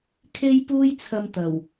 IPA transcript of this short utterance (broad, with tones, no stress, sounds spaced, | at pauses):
kʰ e˥ j p uː˥ j t͡sʰ ɐ˧ m t̪ ɐ˨˩ w